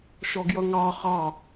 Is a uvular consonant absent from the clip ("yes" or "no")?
no